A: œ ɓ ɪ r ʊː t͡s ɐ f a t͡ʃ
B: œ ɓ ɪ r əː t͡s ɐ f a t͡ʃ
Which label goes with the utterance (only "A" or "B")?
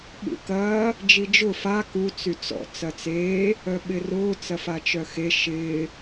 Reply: A